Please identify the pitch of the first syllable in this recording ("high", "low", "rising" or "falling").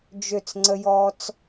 falling